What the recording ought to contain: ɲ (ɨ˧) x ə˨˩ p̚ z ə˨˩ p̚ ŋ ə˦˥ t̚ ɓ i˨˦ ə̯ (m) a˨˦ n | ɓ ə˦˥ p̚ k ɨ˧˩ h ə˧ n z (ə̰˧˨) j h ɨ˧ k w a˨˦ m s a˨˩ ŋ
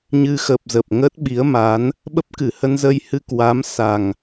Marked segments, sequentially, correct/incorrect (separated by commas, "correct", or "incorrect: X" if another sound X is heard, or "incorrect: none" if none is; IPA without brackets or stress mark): correct, correct, incorrect: ə˧